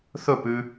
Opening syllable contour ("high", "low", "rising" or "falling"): falling